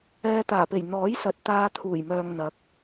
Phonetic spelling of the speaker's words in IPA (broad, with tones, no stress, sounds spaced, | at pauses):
ɛː˧ t̪ aː˨˩ p e˨˩ j n̪ ɔː˨˥ j s ɐ˨ t̚ t̪ aː˧ t̪ʰ uː˨˩ j m œː˨ ŋ n̪ ɐ˨˥ k̚